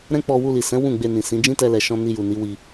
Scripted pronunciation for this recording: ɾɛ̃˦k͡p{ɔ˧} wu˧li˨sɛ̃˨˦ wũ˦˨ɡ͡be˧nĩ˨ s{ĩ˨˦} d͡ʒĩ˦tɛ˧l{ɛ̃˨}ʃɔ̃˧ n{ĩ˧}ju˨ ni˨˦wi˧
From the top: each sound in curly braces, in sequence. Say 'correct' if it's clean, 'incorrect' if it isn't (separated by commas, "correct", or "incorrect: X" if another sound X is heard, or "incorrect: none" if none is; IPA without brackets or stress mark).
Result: correct, correct, incorrect: ɛ˨, incorrect: i˧